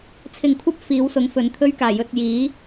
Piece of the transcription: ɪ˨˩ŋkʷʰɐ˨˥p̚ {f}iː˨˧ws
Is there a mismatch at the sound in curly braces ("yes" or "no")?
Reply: no